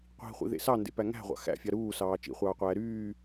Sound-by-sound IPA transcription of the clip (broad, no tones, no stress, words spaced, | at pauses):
qʷi̤χʷḭðḛ sɑndḛpæ ŋæ̤ʁʷɑ̰ xæ̰fʲɑ ɾuːsɑː t͡ʃḭχʷɑːqʷæː ɾyː